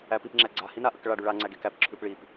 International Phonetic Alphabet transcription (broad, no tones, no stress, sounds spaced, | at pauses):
æ p i p ŋ͡ǁ æ ɡ͡ǀ a h i n a ʔ ə k ɭ a ɖ ʉ ɭ a ŋ͡ǀ æ ɡ e k æ p ǁʰ ʉ p ɭ i p